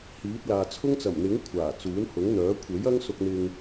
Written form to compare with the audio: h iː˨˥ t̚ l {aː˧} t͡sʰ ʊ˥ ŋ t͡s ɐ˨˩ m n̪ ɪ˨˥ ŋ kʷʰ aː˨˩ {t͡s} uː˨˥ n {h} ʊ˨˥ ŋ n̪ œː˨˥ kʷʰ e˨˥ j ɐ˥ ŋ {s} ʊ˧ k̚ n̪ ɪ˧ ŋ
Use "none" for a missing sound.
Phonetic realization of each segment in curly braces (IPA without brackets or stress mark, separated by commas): aː˨, t͡s, h, s